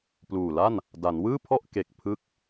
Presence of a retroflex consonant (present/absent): absent